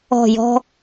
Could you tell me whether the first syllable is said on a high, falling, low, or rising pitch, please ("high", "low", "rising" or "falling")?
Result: falling